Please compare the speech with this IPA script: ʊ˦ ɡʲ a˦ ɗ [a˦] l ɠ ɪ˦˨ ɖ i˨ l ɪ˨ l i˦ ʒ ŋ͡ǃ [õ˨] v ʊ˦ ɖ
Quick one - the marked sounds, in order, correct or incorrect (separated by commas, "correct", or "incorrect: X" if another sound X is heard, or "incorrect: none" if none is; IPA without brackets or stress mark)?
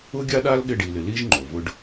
correct, incorrect: o˨